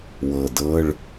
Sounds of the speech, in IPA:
wɤ˨˩dɤ˧˥˧ɭ

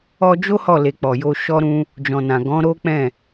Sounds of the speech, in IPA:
ɔ˧d͡ʒo˦ hɔ˦˨le˨k͡pɔ˨jo˧ ʃɔ˦ɾũ˦ | d͡ʒɔ̃˨nã˨ ɡɔ̃˨˦ɾo˦k͡pɛ̃˦˨

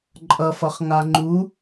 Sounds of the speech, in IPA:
ǃʼʌfʌχ ŋaŋ͡ǃu

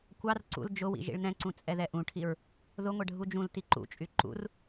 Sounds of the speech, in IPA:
kʷɑr ǀṵl d͡ʒʊwḭ ʒḭɭnɛ̃ǀũ t͡sʼɛðɛʔũʈʰiɹ | ðʊŋʷɛ ɖʱud͡ʒũlti ǃṵt͡ʃʼy ǃṵr

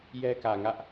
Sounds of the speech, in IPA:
jɛ˦kä˨ŋä˦ʔ

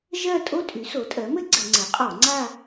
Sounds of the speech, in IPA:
ʒɜ˥˧ tʼo˥tʼy˩˥so˩˥tʼɜ˩˥ mɘ˥ɡ͡ǀə˧˩˧ŋ͡ǀɘ˩˥qʼɔ˧˩˧ ŋ͡ǀa˥˧

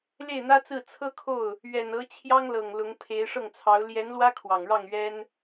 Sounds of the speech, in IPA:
le˥˩ɪ̯n̪ä˥t͡sɹ̩˥˩ t͡sʰɤ˥kʰo˥˩ʊ̯ | ɥɛ˨˩nɤ˧˥ t͡ɕʰjɑ˥ŋlɤ˨˩ŋ lʊ˧˥ŋpʰe˧˥ɪ̯ ʂɤ˥˩ŋt͡sʰɑ˧˥ʊ̯ ljɛ˧˥nlwä˥ kʰwɑ˨˩ŋɻɑ˥˩ŋ ɥɛ˥n

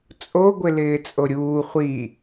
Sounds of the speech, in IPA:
t͡sʼoɡʷɪ lɪːt͡sʼoɾʲuː χʷi

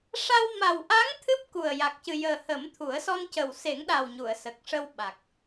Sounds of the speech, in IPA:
ʂa˧w ma˨˩wʔa˧˥ŋ t̪ʰɨ˦˥p̚ ku˨˩ə̯ ja˨˩k̚cɨ˨˩jəː˨˩ hə˨˩˦mt̪ʰu˨˩˦ə̯sɔ˧ncə˨˩w se˨˩˦ŋɗa˨˩wɲu˨˩˨ə̯ sə˨˩k̚ʂə˧w ɓa˨˩k̚

